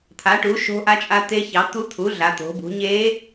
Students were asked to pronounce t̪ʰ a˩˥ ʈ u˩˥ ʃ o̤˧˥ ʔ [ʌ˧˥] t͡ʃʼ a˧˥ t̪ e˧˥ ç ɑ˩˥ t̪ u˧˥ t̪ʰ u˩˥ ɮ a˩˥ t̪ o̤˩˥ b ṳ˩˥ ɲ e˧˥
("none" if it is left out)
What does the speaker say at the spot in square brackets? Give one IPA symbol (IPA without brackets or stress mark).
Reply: a˧˥